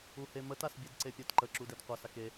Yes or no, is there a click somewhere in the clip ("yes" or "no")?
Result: yes